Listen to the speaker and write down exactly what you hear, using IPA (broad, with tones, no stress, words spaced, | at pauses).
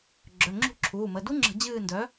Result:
ɡ͡ǁœ˩˧˩ŋ͡ǁṳ˦˨ǁʰuː˩˧˩mə˩˧˩ du˦˥ŋ͡ǁə̤˧˩˧ d͡ʑɨː˦˨ndœ˨˥